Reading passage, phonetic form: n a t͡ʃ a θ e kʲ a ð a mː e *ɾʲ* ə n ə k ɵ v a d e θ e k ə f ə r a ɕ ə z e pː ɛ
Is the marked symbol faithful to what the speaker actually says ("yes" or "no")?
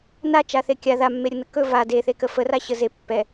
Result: yes